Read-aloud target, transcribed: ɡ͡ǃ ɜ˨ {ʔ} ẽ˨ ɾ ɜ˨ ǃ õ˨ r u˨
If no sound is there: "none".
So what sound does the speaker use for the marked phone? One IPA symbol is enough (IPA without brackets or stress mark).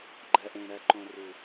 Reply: ʔ